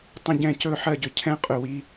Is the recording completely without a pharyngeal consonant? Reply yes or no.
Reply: no